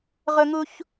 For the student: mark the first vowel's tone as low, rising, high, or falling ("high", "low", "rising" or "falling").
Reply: high